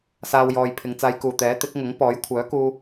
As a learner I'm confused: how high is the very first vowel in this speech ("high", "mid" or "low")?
low